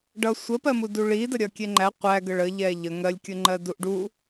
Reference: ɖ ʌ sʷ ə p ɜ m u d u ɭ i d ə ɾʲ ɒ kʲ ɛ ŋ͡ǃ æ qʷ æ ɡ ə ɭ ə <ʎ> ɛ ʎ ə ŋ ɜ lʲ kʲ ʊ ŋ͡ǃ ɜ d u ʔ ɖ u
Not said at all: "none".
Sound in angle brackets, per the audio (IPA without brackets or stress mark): ʎ